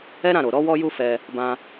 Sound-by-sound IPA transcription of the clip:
ɛ˦ ɾ ã˦˨ ɾ o˨ ɾ ɔ˧ w ɔ˧ j u˧ f ɛ˧ | b ã˧

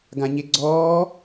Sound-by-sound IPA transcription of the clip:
ɡ ã ɲ e ɡ͡ǀ ɔː

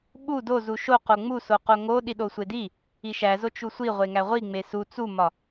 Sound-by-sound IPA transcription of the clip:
ɓ u d o z u ʃ o q o ŋ͡m u s o q o ŋ o ɗ i ɗ o sʷ e d i | i ʃ æ z o t͡ʃ u sʷ i ʁʷ e ŋ æ ʁʷ i ŋ͡m e s u t͡s u m ɒ

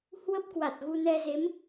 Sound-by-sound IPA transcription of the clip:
h w ə˦˥ p̚ k w a˨˩ t̚ ɣ u˧ n ɛ˧ z e˨˦ m

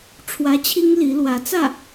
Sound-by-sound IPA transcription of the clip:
ʈ͡ʂʰ w ä˧˥ t͡ɕʰ i˥ ŋ l i˧˥ l w ä˧˥ t͡s ä˥˩

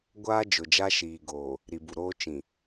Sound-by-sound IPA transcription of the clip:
ɡʷ aː˦ d͡ʒ ʊ˨ d͡ʒ a˦ ʃ iː˨ ɡ oː˨ | ɾ i˨ b u˨ ɾ oː˦ t͡ʃ ĩ˨

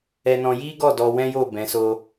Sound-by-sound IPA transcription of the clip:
ɛ˧ n ɔ̃˧ j i˦ ɡ ɔ˦˨ d ɔ˧ w ɛ̃˦ j o˦˨ b ɛ̃˨˦ s o˦

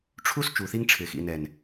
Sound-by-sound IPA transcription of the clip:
ʈ͡ʂʰ u˦ s t͡ʃ u˨ θ i˦ ŋ ʈ͡ʂʰ ɪ˨ x ḭ˨ n ɛ˨ n

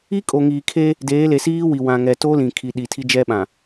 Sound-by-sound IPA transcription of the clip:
i˦ kʼ o˨ ŋ iː˨ kʰ e˦ | d eː˨˦ l e˨ s iː˦ w i˨ w ã˨ ŋ ɛ˨ t o˦ l ĩ˨ kʰ i˨ ɗ i˨ tʰ i˦ d͡ʒ ɛ˦ ɓ ã˨

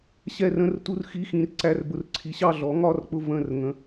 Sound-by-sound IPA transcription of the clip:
ɕ ɛ˦˨ r ə̃˧˥˧ r t u˧˥˧ r x i˧˥˧ x ĩ˨˥ r ǀ æ˧˥˧ r b ʊ˦˨ r ǀʰ i˨˥ ɕ ɑ˦˨ ɮ ɔ˨˥ ŋ ɒ˧˥˧ r k͡p ʊ˦˨ v ə̃˦˨ r ŋ ə̃˧˥˧

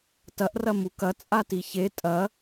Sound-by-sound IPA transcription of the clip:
t ɐ ʔ r ɐ m u k ɐ t͡sʼ a t i ç e tʼ ɐ

